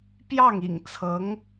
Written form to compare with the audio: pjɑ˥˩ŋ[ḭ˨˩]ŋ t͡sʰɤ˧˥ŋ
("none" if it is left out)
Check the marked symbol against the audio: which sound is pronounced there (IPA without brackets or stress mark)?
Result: ḭ˨˩